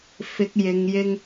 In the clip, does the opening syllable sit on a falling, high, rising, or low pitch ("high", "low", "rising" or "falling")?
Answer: low